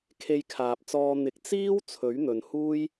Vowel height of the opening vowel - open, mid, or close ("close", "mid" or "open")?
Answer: mid